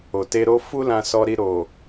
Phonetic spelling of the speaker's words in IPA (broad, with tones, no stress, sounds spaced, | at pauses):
o˨ t e˧ ɾ o˦ f u˦ l ã˧ s ɔ˧ ɾ i˧ ɾ o˨